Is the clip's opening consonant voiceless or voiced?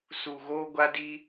voiceless